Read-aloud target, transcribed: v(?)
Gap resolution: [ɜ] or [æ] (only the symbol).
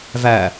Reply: æ